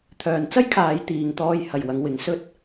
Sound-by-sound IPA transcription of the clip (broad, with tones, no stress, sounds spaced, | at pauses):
t̪ʰ œː˨ n t͡s ɐ˥ j kʰ aː˨˧ j t̪ iː˨ ŋ t̪ ɔː˧ j h ɐ˨ j w ɐ˨˧ ŋ w ɪ˨˧ ŋ s ɵ˥ t̚